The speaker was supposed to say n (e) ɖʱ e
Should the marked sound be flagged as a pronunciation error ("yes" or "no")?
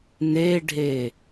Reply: no